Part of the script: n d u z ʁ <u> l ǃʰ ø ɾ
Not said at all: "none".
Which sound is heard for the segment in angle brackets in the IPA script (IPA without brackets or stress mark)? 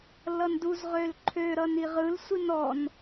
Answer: ø